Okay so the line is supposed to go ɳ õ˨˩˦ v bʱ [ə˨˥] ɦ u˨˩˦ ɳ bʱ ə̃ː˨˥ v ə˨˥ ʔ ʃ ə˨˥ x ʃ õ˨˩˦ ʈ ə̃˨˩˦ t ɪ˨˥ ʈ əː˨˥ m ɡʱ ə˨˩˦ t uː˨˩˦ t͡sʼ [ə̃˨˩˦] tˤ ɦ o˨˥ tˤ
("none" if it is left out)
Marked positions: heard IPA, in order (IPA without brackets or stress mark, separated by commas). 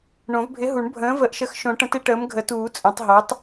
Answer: ɪ˨˥, ə̃˨˩˦